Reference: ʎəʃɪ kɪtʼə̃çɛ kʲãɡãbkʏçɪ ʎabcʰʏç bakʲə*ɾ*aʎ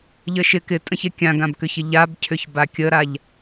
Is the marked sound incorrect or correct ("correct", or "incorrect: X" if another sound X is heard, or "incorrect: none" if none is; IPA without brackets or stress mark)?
correct